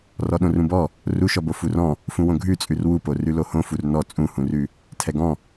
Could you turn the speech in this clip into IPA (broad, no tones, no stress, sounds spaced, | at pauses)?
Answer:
r ɔ ɗ õ r ũ b ɔ | r u ʃ ɔ b o f u r ɔ̃ | f ũ w õ ɡʱ ʉ t͡sʼ ʉ r w u p o r ʉ l o h õ f u r n ɔ t͡sʼ ũ h ũ r ʉ | tʰ ɛ ɡ ɔ̃